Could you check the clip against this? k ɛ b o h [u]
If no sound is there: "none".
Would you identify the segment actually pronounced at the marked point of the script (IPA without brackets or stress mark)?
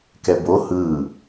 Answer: ɯ